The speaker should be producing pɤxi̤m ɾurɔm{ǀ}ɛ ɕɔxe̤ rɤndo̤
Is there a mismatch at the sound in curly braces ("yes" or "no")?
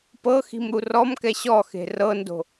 yes